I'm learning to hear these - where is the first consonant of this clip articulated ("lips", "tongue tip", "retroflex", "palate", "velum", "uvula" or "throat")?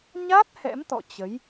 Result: palate